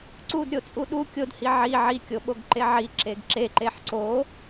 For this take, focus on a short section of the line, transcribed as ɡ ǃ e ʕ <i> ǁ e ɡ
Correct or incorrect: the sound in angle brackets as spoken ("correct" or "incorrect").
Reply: correct